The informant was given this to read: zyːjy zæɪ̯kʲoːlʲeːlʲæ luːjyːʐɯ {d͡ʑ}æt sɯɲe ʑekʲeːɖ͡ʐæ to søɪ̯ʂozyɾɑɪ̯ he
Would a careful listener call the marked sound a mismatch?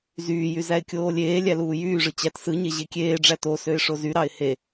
yes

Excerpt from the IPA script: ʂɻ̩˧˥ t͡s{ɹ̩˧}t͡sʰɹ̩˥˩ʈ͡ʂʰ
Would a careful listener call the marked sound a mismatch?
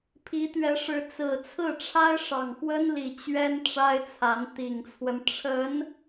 yes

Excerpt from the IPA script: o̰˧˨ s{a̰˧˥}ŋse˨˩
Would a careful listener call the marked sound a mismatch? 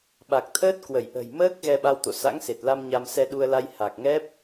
no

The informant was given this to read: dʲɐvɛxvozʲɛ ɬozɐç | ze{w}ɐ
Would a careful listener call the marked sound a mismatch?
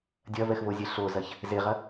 yes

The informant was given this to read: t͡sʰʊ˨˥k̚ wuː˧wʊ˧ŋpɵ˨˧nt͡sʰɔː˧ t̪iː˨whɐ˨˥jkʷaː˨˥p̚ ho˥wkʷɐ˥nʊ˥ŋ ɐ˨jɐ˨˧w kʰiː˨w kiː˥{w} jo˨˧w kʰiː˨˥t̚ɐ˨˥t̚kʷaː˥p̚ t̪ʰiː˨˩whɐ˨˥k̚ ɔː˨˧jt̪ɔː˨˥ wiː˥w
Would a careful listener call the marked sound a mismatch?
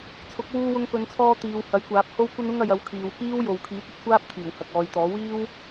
no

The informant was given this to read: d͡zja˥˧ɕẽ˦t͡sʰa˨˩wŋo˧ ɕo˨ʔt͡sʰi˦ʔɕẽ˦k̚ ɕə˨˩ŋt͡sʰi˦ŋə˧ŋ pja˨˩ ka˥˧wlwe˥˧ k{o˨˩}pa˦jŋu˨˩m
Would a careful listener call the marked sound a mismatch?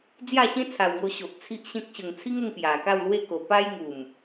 no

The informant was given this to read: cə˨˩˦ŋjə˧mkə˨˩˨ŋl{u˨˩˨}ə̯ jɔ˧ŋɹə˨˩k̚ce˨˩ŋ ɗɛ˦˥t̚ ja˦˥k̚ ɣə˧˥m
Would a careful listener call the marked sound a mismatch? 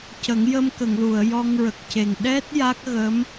no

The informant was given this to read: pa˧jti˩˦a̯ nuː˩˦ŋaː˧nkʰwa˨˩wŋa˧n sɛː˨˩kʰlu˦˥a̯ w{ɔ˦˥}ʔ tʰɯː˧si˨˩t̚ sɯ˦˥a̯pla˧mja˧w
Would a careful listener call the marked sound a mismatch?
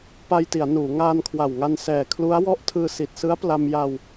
no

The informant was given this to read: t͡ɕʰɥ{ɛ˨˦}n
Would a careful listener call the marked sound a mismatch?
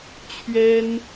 yes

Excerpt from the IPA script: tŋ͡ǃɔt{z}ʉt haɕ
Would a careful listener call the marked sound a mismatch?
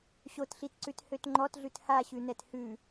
yes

